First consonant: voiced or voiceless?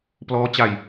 voiceless